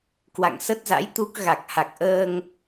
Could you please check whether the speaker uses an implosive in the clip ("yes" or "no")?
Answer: no